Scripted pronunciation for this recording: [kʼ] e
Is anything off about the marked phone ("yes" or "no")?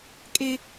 no